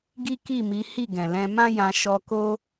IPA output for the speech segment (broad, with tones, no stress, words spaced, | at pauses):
ɡi˦ki˦˨mi˨˦ hi˦˨ɡɛ̃˨lɛ̃˧ mã˦jã˧ ʃɔ˧ ko˦